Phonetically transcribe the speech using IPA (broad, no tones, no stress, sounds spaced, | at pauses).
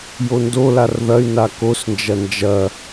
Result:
j o n d o l a r ð ɐ y̯ n a k o s n d͡ʒ ɐ n d͡ʒ ɐ